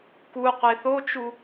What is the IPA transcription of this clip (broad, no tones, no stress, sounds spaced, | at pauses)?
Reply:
k u qʷ e θ o t͡ʃ u